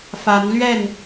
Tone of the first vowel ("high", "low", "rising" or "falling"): rising